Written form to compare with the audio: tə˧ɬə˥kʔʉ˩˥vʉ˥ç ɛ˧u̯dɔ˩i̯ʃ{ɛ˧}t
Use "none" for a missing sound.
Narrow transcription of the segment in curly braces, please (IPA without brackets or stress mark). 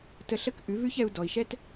ɛ˥